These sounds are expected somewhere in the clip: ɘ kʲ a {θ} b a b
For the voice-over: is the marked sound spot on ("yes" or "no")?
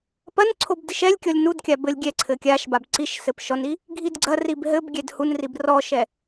no